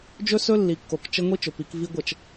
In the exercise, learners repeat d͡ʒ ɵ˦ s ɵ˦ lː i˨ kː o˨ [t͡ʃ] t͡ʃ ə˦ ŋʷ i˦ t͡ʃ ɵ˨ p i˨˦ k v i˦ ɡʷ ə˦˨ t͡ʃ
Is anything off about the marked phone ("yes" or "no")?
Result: yes